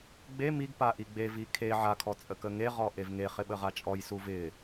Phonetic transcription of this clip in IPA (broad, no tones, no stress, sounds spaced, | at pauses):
ɡ͡b e m i ɡ p a ʔ i ɡ͡b e v i kʰ e ʕ a kʰ ɔ t͡sʼ ə k ə ŋ e ʁ ɔ ʔ e v ŋ e χ ɪ ɓ ə ʁ a t͡ʃʼ ɔ j s u v ɪ